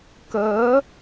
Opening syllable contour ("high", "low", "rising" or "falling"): rising